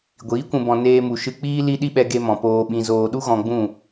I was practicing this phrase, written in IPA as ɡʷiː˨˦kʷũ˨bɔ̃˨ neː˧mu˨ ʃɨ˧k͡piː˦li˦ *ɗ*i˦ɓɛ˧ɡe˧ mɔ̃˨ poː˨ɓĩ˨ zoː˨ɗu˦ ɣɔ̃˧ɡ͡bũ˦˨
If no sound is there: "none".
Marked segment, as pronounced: ɗ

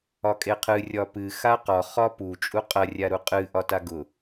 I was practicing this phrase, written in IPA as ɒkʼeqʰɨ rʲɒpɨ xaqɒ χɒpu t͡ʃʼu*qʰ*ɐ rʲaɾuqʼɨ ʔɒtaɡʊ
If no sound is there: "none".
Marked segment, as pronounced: qʼ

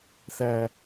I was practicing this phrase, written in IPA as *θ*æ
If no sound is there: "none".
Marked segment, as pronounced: θ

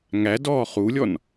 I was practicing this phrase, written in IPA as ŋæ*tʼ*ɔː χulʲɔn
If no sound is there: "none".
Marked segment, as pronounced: d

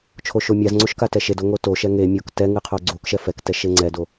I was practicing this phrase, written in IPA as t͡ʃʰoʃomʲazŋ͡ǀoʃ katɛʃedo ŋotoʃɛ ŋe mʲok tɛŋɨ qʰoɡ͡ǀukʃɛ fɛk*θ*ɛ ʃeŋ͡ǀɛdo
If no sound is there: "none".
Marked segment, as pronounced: t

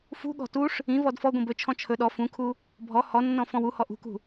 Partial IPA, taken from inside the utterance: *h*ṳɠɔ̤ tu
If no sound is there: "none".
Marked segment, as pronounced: f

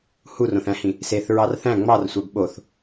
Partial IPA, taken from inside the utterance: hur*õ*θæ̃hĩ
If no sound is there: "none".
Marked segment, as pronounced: õ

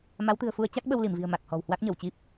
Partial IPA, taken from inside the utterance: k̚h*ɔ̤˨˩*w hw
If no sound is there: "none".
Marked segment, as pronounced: ɔ̤˨˩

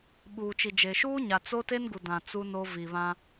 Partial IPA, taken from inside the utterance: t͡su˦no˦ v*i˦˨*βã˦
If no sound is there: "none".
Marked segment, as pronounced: i˨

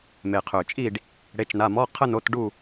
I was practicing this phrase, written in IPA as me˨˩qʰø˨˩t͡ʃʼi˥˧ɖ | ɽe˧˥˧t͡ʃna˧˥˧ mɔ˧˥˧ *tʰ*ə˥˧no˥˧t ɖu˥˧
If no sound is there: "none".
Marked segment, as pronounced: qʰ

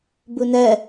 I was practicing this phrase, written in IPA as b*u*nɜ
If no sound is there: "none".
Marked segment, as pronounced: u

